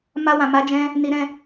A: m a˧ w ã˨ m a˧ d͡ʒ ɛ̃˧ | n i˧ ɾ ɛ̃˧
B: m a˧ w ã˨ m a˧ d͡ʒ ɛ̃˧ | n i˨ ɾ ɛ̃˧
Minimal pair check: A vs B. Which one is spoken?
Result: A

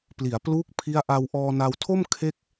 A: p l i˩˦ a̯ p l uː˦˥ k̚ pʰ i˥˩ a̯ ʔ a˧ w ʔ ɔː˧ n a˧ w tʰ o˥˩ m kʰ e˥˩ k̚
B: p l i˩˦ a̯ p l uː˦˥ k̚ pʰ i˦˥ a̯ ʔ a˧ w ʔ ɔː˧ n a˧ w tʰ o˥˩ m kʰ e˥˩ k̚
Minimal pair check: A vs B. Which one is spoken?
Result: B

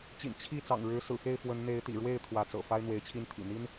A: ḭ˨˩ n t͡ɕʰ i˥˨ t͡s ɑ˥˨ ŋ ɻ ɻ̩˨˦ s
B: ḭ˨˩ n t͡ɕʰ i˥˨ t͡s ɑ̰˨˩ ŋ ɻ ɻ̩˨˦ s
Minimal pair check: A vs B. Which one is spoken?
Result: B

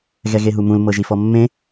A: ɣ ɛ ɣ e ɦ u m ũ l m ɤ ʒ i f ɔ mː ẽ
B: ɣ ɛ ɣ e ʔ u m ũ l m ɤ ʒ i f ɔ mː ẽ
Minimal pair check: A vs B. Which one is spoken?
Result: A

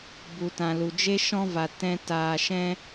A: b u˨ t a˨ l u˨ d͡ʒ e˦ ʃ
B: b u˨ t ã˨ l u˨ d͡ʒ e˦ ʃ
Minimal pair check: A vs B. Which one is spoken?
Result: B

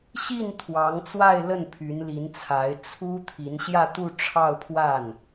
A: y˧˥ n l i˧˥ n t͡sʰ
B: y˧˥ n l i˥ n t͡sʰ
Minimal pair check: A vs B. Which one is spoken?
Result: A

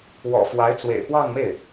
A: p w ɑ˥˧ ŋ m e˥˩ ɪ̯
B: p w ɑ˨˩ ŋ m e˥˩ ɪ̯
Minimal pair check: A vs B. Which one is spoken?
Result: A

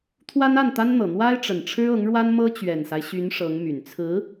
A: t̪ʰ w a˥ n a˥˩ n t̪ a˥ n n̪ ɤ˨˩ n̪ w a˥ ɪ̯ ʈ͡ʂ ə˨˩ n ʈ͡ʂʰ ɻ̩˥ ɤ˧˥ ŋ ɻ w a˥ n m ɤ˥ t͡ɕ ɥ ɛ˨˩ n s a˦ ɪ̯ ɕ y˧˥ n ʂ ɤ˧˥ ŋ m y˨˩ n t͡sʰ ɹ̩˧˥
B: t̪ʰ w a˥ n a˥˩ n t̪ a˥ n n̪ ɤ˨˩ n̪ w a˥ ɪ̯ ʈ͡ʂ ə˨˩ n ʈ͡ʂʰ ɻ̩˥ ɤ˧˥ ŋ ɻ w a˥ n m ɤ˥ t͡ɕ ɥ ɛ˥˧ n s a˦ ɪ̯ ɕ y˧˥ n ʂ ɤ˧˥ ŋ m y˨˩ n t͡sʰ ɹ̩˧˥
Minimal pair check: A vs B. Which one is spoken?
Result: A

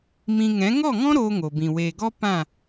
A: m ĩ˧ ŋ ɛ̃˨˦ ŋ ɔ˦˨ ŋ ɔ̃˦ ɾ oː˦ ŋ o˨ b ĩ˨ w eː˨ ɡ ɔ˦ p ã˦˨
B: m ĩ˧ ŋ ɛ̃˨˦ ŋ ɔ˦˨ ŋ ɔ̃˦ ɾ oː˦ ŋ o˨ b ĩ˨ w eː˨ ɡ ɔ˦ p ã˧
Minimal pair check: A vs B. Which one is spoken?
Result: A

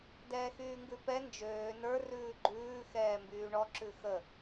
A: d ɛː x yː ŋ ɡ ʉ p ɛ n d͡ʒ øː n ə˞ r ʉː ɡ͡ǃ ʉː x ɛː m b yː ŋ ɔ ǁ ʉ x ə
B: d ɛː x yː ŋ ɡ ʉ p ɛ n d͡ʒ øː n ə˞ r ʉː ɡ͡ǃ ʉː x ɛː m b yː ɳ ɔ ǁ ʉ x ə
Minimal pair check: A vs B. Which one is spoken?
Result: B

